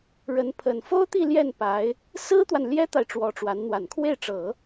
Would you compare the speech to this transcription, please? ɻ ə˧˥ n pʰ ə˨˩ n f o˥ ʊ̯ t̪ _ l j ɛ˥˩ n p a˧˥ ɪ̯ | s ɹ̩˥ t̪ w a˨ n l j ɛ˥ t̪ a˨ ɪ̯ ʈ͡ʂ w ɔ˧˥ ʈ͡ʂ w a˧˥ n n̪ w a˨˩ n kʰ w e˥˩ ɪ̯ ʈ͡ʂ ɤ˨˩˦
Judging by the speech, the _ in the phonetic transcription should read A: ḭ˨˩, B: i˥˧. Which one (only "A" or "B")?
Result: B